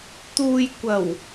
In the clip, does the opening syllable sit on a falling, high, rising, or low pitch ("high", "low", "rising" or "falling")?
low